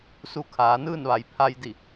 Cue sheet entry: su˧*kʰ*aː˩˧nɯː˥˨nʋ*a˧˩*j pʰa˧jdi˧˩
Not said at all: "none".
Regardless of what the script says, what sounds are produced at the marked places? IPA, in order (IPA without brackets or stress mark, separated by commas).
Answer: kʰ, a˩